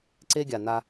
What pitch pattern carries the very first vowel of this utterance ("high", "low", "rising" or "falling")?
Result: high